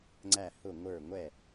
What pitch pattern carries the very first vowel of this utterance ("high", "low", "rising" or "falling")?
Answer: falling